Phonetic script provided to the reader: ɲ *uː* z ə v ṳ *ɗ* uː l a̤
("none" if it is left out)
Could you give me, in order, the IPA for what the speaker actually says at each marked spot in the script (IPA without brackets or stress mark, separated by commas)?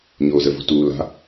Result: oː, t